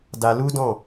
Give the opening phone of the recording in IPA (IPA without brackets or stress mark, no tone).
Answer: d